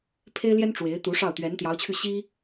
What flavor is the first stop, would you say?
aspirated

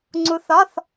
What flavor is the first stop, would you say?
click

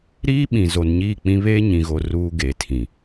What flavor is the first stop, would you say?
implosive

